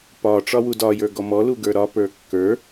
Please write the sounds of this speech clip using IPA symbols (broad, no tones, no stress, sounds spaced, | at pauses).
p ɒ ʈ͡ʂ ɒ w u d ɒ j ə˞ ɡ ɔ m ɔ l u ɡ ə˞ ɾ ɒ p ə˞ kː ə˞